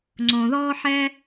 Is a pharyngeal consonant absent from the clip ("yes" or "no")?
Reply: no